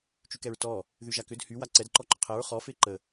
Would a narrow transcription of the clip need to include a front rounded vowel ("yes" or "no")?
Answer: yes